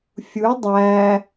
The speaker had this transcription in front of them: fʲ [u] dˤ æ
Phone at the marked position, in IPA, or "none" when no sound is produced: u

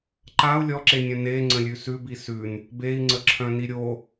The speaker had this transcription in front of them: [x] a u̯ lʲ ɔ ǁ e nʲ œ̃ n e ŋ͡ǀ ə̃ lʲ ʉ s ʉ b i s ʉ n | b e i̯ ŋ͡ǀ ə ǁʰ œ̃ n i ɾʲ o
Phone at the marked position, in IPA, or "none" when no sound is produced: ǃ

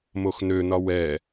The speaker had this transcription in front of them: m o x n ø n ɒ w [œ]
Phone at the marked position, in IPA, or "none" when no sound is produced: ɛ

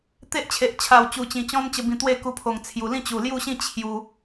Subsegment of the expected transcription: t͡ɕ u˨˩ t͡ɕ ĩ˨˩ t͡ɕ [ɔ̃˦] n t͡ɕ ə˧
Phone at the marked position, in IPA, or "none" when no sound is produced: ɔ̃˦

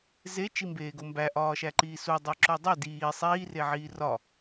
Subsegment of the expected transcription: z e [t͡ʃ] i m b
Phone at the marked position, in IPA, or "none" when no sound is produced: t͡ʃ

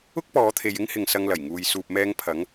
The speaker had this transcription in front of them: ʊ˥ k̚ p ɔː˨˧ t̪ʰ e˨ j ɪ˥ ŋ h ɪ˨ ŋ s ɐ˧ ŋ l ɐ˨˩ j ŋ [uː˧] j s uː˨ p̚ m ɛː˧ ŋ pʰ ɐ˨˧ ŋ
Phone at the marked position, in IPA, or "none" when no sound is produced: uː˨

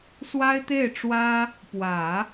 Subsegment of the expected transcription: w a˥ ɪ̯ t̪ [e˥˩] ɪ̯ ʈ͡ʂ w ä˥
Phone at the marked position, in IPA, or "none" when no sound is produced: e˥˩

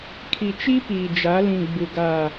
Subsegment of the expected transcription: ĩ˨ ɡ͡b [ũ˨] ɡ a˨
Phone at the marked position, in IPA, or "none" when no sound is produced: u˨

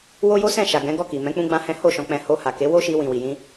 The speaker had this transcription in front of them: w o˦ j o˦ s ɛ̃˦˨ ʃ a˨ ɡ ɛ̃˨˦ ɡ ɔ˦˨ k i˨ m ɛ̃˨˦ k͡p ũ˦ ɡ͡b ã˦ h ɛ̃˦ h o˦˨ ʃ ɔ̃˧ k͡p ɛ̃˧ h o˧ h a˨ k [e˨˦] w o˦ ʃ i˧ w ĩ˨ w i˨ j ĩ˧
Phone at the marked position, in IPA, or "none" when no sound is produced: e˨˦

